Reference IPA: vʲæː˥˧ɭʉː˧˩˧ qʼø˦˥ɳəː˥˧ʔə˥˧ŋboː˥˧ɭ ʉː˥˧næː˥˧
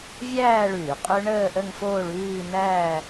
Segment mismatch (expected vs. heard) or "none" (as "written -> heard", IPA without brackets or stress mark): b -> f